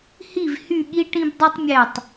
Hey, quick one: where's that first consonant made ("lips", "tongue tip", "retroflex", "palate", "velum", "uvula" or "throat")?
throat